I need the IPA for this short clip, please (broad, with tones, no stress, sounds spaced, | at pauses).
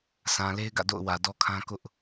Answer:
sʰ ã˨ l e˦ ɪ̯ ɡ ä̰˦˨ d o̰˦˨ ʊ̯ w ä˨ d ɔ˦ kʰ ã˦ k ʊ˦ ʔ